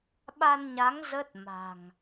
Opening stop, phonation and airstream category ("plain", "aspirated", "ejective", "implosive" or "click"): implosive